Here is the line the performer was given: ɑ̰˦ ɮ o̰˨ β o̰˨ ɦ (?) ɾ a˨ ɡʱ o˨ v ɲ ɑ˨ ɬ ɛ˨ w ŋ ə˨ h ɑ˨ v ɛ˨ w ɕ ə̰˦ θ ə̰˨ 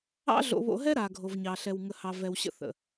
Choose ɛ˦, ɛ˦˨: ɛ˦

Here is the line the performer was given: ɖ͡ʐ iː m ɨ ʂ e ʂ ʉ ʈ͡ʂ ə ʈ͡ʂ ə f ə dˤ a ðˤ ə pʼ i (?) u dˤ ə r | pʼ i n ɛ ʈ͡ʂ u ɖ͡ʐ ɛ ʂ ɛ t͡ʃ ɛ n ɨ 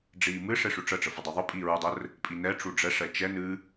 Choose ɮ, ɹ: ɹ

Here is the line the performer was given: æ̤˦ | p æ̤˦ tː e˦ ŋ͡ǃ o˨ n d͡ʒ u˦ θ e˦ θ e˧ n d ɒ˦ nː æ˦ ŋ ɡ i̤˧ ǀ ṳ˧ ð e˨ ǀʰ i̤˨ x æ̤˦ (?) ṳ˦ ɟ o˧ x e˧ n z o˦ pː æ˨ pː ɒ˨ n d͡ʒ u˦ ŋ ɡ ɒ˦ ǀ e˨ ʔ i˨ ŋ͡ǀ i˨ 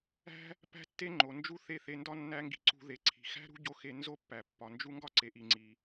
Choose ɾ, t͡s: ɾ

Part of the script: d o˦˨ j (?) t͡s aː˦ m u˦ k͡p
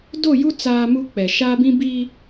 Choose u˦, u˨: u˦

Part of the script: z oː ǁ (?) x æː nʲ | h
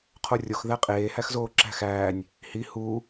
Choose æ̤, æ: æ̤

